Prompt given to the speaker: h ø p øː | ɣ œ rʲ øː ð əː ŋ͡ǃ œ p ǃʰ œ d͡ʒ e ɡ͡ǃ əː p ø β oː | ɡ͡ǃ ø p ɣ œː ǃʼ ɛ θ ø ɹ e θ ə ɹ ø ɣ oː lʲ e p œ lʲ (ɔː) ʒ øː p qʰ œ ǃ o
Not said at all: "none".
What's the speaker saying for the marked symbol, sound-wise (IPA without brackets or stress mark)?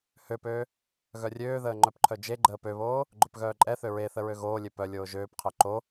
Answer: oː